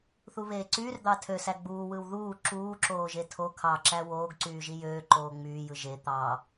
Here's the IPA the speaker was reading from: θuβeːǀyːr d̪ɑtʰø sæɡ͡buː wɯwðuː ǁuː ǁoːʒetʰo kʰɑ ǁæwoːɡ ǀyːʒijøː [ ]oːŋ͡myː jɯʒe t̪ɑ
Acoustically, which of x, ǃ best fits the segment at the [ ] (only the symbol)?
ǃ